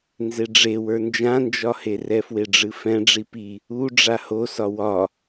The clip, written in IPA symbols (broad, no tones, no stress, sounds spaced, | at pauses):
n z e ɖ͡ʐ e w ə˞ n d͡ʒ ã n d͡ʒ ɒ h e r ɛ f w e ɖ͡ʐ ɨ f ɛ̃ ɖ͡ʐ i p i | u ɖ͡ʐ a h o s ɒ w ɒ